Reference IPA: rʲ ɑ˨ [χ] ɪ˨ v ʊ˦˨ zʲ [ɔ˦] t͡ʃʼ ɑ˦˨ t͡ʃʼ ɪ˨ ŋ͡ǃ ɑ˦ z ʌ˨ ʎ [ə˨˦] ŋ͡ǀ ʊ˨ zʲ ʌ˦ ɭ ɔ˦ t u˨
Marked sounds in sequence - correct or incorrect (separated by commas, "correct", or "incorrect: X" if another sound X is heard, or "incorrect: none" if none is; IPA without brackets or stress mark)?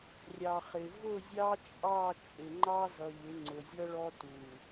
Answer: correct, incorrect: ɑ˦, incorrect: ɪ˨˦